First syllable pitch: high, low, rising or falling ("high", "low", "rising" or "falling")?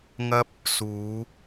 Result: high